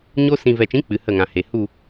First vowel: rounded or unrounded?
rounded